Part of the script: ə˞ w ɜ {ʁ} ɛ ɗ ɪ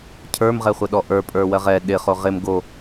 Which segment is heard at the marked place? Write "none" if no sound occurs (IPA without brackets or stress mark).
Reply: ʁ